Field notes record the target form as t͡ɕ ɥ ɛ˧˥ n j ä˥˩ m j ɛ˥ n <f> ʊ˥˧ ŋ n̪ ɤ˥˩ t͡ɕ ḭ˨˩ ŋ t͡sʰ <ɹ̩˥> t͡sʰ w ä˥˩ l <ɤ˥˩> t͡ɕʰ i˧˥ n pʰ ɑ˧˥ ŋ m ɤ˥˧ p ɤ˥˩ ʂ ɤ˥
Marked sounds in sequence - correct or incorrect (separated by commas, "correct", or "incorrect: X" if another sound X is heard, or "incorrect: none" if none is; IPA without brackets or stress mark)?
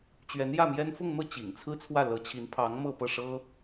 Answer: correct, correct, incorrect: ɤ˧˥